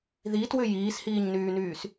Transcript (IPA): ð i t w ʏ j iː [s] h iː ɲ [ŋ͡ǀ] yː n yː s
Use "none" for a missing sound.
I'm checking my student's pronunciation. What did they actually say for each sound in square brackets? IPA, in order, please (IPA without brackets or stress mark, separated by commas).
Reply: s, n